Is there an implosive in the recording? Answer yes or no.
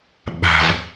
yes